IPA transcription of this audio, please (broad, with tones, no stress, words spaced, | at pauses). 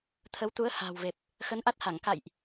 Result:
t̪ʰə˨˦wt̪u˨˦ə̯ ha̤ː˨˩wve˨˩p̚ | xə˨˦nʔa˦˥t̚ha˧˩ŋ ka̰˧˨jʔ